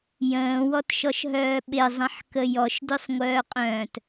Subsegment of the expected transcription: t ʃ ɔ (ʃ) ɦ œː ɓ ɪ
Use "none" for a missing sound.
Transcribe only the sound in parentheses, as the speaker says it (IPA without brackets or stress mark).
ʃ